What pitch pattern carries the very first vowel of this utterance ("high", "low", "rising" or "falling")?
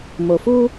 low